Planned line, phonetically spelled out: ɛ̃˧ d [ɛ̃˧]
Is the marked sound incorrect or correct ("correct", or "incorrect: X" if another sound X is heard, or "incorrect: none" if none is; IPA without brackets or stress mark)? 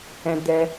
incorrect: ɛ˧